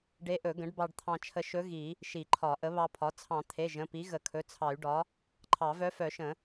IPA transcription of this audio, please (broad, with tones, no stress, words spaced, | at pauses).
ɖe˧˥ʔɵ˨˩˦ɡə̃˩˥ɖbɑ˧ɖ t̪ʰɑ̃˧t͡ʃʰə˧ ʃɵ˧˥ ɣi˨˩˦ | ʃi˨˩˦ǃʰɒ˨˩˦ ʔə˩˥βɑ˧pʰɒ˩˥ t͡sʰɑ̃˨˩˦t̪ʰe˩˧˩ ʒə̃˩˧˩pi˩˥ ɣə˨˩˦kʰɵ˩˧˩t͡sʰɑ˨˩˦y̯ɖɒ˩˥ | ǃʰɑ˨˩˦vœ˧˥ fœ˨˩˦ʃə̃˨˩˦